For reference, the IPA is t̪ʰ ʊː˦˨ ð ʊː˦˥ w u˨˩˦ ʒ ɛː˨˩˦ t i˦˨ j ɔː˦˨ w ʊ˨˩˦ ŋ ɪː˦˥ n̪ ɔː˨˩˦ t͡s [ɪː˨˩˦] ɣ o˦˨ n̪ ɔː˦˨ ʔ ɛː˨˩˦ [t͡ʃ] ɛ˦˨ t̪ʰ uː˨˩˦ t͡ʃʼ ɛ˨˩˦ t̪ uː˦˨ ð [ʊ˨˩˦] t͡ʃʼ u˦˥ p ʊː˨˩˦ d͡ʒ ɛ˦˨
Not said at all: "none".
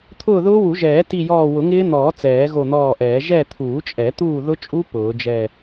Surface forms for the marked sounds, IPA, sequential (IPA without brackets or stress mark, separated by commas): ɛː˨˩˦, ʒ, ʊ˦˥